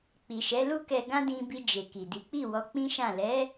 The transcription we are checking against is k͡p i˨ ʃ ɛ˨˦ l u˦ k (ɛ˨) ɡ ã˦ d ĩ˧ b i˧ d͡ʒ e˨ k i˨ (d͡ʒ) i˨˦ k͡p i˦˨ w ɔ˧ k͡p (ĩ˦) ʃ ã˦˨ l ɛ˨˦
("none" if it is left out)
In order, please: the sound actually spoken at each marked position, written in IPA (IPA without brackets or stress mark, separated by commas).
ɛ˧, d, ĩ˦